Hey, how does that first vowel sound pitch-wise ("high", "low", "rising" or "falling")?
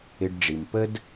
low